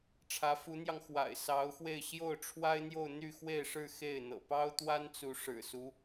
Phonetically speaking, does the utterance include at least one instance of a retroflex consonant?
yes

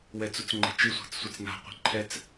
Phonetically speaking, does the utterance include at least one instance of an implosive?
no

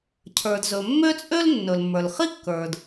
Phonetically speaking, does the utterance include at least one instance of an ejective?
yes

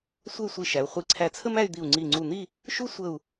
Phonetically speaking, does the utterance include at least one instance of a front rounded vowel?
yes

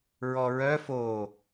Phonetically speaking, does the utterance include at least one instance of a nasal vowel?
no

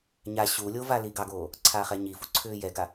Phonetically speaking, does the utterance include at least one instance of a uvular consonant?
yes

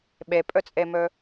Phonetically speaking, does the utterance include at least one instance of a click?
no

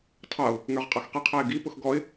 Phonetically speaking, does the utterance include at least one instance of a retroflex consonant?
no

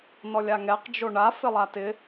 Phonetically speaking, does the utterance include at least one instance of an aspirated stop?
no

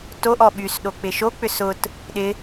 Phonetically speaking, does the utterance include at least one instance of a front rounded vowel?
yes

